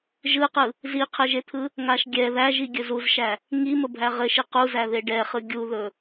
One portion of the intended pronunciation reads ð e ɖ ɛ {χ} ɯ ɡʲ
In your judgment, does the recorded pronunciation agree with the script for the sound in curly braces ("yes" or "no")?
yes